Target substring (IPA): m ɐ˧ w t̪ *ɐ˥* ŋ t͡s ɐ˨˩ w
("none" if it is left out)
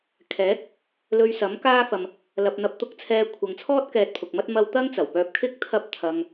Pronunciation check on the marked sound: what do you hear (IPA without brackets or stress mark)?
ɐ˥